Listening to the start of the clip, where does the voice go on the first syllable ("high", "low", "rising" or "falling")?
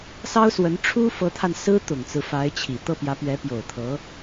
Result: high